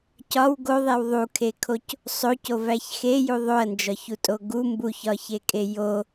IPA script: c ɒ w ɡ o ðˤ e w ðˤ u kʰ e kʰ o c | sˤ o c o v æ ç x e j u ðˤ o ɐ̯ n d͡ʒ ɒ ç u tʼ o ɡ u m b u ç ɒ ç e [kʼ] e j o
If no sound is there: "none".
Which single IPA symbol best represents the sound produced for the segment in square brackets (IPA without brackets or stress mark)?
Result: kʼ